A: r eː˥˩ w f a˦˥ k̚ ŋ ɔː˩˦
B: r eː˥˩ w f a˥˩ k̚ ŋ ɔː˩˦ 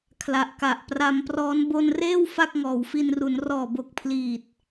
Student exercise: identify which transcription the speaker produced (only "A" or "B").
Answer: B